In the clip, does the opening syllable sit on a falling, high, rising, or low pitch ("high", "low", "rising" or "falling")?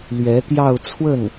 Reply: rising